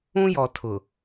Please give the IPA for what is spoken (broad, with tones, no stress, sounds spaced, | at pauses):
ũ˦ j ɔ˨ tʰ ʊ˨